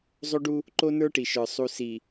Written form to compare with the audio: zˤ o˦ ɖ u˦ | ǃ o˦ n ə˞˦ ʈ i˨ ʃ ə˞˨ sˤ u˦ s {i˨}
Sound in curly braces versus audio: correct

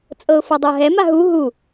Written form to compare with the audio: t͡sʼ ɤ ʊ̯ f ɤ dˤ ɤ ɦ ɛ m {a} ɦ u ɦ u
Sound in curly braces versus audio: correct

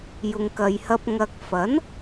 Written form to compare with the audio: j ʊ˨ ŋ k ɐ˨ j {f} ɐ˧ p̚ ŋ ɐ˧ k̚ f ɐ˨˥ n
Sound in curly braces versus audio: incorrect: h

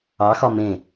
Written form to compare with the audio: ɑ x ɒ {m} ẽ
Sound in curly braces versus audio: correct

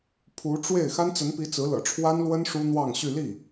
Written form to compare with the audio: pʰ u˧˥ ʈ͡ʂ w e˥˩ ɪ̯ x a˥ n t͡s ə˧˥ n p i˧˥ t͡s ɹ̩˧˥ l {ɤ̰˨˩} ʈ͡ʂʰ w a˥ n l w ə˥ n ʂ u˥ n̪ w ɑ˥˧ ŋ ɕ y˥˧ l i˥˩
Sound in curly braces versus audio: correct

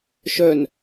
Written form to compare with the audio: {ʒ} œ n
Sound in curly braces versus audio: incorrect: ʃ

